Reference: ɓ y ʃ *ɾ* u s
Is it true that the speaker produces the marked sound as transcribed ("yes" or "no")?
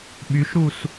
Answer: yes